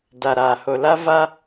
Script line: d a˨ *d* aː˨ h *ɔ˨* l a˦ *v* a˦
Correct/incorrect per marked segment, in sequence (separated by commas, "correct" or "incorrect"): incorrect, incorrect, correct